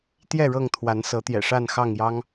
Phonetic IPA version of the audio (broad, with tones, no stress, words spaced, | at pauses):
t̪jɛ˥˨ɻɤ˥˨ŋt̪ʰwa˨˦n sɤ˨˦t̪jɛ̰˨˩ʂa˥˨n xɑ˥˨ŋjɑ˦ŋ